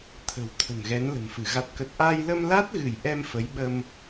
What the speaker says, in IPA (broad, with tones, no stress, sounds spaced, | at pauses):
t̪ʰ ə̤˨˩ w t̪ʰ ə̤˨˩ n ɣ ɛ˨˦ n l ə̤˨˩ m f ɨ˧˩ ɣ a˨˩ t̚ k ə˨˩ t̚ ʔ a˧ j l ə˧ m l a˦˥ t̚ ɣ ɨ˧˩ j ʔ ɛ˧ m f ə˨˦ j ɓ ə˧ m